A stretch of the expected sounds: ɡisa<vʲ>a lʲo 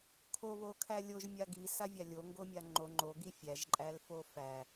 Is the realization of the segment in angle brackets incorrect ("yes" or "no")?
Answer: no